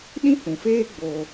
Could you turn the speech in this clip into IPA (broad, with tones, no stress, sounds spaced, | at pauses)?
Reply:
ɗ ĩ˦ h ũ˨ f eː˦ ɡ͡b o˧